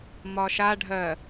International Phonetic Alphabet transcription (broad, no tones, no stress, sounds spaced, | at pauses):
m ɒ ʃ a ɖʱ ɜ